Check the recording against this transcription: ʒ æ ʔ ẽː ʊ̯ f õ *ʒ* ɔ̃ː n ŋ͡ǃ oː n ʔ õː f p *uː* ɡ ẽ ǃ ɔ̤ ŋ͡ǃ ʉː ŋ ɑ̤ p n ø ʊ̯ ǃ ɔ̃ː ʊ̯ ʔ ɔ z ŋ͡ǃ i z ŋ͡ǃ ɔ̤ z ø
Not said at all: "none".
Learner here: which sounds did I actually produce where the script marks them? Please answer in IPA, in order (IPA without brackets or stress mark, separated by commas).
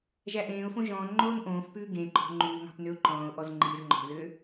ʒ, ʉː